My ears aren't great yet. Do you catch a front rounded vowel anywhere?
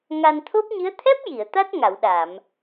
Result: no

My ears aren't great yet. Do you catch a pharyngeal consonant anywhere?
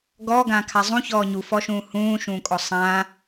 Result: no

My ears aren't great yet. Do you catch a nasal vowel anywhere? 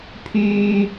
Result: no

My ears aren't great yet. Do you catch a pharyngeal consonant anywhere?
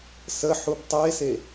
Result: yes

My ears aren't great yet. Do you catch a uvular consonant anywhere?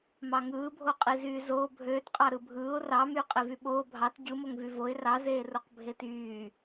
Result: yes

